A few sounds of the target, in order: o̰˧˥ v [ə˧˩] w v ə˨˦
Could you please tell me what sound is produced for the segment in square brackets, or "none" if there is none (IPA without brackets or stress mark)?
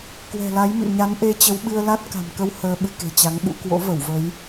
ə˧˩